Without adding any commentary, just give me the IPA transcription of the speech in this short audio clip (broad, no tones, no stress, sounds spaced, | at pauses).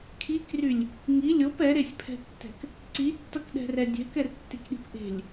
kʰ i k r y lʲ | ŋ i lʲ o p ɛ ɾ e sʲ pʰ ɛ̤ tː ɛ̤ k | ǀ i tː ʌ k ɗ ɛ̤ r ɛ dʲ ɛ̤ k ɛ r tː i k ɗ i̤ p ʔ e̤ lʲ